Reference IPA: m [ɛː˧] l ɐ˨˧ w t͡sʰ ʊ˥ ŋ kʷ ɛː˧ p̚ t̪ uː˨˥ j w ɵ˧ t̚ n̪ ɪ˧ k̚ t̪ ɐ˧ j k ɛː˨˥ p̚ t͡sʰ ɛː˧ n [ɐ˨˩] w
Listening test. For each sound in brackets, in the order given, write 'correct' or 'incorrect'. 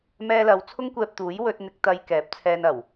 correct, correct

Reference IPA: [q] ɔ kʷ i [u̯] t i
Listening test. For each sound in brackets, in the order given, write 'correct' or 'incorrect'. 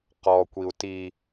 correct, correct

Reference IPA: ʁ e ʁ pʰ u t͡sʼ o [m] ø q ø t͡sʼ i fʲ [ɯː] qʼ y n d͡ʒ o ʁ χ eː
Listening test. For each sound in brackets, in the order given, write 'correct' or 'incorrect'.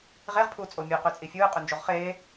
incorrect, correct

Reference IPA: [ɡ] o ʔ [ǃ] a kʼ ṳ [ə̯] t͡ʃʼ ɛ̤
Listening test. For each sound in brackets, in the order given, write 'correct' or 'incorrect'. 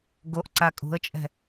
correct, incorrect, correct

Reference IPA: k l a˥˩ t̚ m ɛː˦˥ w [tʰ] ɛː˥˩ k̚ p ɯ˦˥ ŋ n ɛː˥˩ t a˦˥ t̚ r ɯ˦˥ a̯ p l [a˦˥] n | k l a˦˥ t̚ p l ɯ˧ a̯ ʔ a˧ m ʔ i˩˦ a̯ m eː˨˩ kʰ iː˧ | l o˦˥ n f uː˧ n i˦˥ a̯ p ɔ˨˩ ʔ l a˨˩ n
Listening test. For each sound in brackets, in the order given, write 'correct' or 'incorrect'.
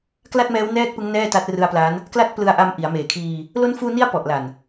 incorrect, correct

